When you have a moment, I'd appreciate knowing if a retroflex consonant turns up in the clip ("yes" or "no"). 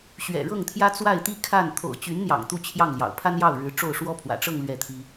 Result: yes